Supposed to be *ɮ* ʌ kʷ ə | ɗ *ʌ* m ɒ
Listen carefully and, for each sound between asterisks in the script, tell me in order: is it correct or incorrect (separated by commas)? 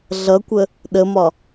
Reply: correct, incorrect